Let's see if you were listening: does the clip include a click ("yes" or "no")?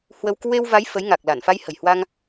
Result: no